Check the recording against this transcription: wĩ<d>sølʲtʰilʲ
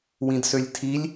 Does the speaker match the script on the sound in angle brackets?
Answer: yes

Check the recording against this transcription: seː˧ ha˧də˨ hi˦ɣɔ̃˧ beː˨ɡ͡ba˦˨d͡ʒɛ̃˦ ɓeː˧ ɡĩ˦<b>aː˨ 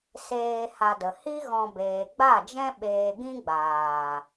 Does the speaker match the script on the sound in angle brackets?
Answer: no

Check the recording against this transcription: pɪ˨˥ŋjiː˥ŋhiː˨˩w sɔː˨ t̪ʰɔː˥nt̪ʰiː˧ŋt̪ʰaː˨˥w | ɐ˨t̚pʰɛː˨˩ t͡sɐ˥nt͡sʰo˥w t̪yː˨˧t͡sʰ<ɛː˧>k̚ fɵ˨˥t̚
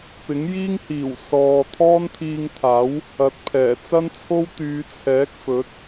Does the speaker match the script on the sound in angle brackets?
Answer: no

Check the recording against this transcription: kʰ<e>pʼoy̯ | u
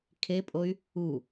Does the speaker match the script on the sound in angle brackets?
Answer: yes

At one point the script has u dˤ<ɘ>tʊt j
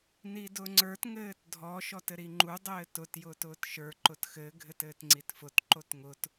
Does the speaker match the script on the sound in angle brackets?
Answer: no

